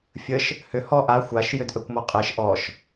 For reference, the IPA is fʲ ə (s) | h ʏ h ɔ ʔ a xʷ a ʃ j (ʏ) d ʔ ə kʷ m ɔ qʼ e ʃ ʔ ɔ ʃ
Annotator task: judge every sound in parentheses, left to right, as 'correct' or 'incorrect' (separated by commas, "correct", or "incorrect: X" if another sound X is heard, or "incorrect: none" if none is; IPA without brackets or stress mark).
incorrect: ʃ, correct